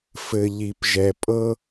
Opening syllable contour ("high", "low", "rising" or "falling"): low